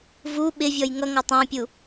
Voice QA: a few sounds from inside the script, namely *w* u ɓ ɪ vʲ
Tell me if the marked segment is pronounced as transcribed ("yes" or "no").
no